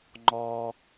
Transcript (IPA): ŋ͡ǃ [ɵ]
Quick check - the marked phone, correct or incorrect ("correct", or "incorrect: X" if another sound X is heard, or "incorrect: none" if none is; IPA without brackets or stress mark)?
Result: incorrect: ɔ